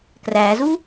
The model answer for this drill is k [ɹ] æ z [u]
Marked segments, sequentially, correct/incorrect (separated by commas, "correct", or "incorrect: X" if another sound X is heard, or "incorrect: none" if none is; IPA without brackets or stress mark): incorrect: r, correct